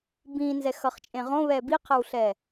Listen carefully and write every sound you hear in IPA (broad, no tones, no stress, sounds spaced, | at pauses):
b ĩ n z ɛ x ʌ χ t͡ʃʼ ẽ ʁ õ β ɛ b i qʰ a w ɬ ɛ